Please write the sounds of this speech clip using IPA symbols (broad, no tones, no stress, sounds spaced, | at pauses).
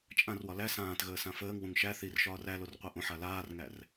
t͡ʃʼ ã r w ɒ l æ s ãː t ɣ əː s ã f əː ŋ w ũ ŋ ʃ æ θ i r ʃ ɒː r æ l o r qʷ a ʔ õ ħ a l aː r ŋ æ r